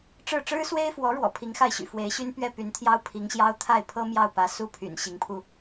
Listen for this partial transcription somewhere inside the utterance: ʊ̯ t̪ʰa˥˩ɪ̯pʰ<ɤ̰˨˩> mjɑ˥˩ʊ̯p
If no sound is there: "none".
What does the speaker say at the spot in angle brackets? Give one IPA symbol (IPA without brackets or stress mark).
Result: ɤ˥